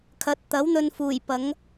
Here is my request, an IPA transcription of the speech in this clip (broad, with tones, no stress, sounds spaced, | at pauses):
kʰ ɐ˨˥ t̚ t̪ ɐ˨˥ w n̪ ɵ˧ n f uː˨˩ j p ɐ˨˥ ŋ